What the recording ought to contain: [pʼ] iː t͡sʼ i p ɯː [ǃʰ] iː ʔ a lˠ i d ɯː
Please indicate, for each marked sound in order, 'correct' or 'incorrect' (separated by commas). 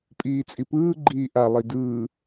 correct, incorrect